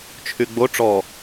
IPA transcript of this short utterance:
t͡ʃʰ y ɡ͡b o ʈ͡ʂ ɔ

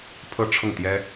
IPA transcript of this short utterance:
pʰ ɤ˥˧ ʈ͡ʂʰ ʊ˥˩ ŋ t̪ j ɛ˥

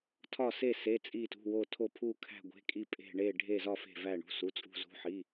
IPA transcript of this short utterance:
tʰ ɒ˧˩ s e˧˩ s e˩˧˩ t͡sʼ i˧˩ t ṳ˩˧˩ w o˧˩ tʰ o˧˩ pʰ u˧˩ kʰ æ̤˧˩ ɡʷ e̤˩˧˩ kʼ i˧˩ pʼ e̤˧˩ ɳ e˧˩ ɖʱ e˧˩ z ɒ˧˩ f e̤˧˩ v æ˧˩ ɳ ṳ˩˧˩ s u˩˧˩ t͡sʼ ṳ˧˩ z ṳ˩˧˩ ħ i˩˧˩

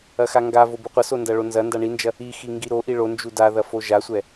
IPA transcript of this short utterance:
ɐ x a ŋ ɡ a v o b u qʷ ɐ s o n d ɐ ɭ o n z ɐ n d a ɳ i n d͡ʒ ɐ | i x i ŋ ɡ i ɾ o ʔ i ɭ o n d͡ʒ u d a ð ɐ f o ʒ a sʷ ɛ

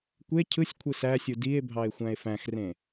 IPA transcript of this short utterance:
kʷ e cʰ ɯ sʲ kʷʰ ɯ s æ sʲ u d i e̯ bʱ ɑ e̯ xʷ æ̃ e̯ f æ̃ x r ẽ

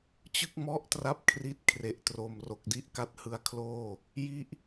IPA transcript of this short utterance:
t͡ɕ ɯ˥˩ k̚ m ɔ˦˥ ʔ t r a˦˥ p̚ kʰ r i˦˥ t̚ kʰ r e˨˩ ʔ t r o˨˩ m r o˨˩ k̚ d i˥˩ ʔ k a˦˥ t̚ h ɯ˧ a̯ kʰ l oː˥˩ | j i˥˩ ʔ

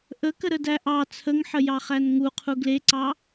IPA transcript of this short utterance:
ʔ ə k ə ɾ ə d æ ʔ ɑ t͡sʰ ə ŋ ħ ə j ɑ χ æ n ŋ u qʰ u ɡ l e ǀ ɑ

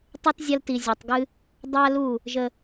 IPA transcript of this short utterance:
tˤ ɨ˦ t zʲ a˦ l t i˧ zʲ e˧ tˤ ɡ ɨ˦ | dˤ a˦ l u˦˨ | ʒ ə˧

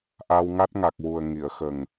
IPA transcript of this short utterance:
ʔ a˧ w ŋ a˦˥ t̚ ŋ a˨˩ k̚ w u˨˩ ə̯ ŋ i˨˩˨ ə̯ x ə˨˩ ŋ

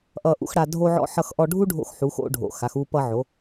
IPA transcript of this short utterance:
ʔ ʌ˧ ʔ ṵ˧ x ɽ a˧ dʱ o˧ ʕ ɔ̰˧ ħ ʌ˧ x ʔ ɔ˧ ɖʱ u˥ ɖʱ o̰˧ x ħ u˩˧ x o̰˧ ɖʱ o̰˩ x a˩˧ x u˧ p ʌ˧ ʕ o˩˧

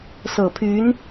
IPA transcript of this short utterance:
s ɤ˨˩ pʰ y˧˥ n

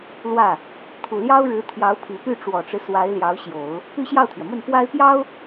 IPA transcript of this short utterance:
l w ä˥˩ | t̪ʰ u˨˩ l j ɑ˥ ʊ̯ ɻ ɻ̩˧˥ t̪ʰ j ɑ˧˥ ʊ̯ pʰ i˨˩ p y˥˩ ʈ͡ʂ w ɔ˨˩ ʈ͡ʂ ɻ̩˦ s w a˧˥ ɪ̯ l j ɑ˧˥ ʊ̯ ɕ j o˨˩˦ ʊ̯ | p y˥ ɕ j ɑ˥˩ ʊ̯ t̪ʰ ɥ ɛ˩ m ə˥˩ n p w a˥ ɪ̯ p j ɑ˥ ʊ̯

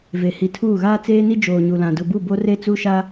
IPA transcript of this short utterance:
v e˨ h i˨ tʰ uː˦˨ ɣ aː˦ t͡s eː˦ n i˦ d͡ʒ oː˨ ɲ u˨ l ã˨ d ʊ˨ b u˦˨ b o˦ r e˦ t͡s u˦ ʃ a˦

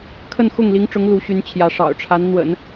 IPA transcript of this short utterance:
kʰ ə˥˧ n x ʊ˥˩ ŋ l i˧˥ ŋ ʈ͡ʂ ʊ˧˥ ŋ l u˧˥ ɕ y˧˥ n t͡ɕʰ j ä˧˥ ʂ ɑ̰˨˩ ʊ̯ ʈ͡ʂʰ a˧˥ n n̪ w ə̰˨˩˦ n

